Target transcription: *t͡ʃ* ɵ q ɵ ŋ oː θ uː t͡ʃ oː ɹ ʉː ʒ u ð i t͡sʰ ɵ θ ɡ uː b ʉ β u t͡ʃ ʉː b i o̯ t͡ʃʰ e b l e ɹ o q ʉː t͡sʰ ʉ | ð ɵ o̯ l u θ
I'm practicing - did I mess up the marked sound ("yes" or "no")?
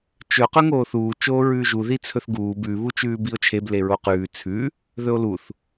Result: no